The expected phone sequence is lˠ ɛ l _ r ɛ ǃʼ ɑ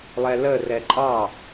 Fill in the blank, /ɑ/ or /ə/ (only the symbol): ə